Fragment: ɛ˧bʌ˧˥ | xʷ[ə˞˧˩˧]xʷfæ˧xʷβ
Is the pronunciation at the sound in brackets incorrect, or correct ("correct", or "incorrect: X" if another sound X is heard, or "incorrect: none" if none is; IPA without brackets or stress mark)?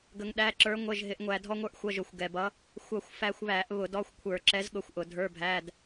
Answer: incorrect: ʌ˧˩˧